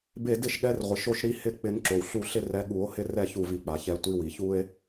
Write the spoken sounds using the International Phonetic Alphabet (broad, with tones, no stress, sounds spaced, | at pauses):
b e˧˩ d ɪ˥˩ ʃ ɠ ɛ˨˦ r ʁʷ ɪ˩ ʃ o˦ ʃ ɾ i˦ h ɪ˥˩ k͡p ɪ˨˩˦ n ǁ o˩ w ɬ u˧˩ ɬ ɪ˦ r ɛ˨˦ ɠ u˨˩˦ o̯ h ɪ˦ r ɛ˥˩ ç u˧˩ v i˨˩˦ k͡p a˩ ç ɛ˨˩˦ tʷ i˨˦ w i˩ ç u˦ e̯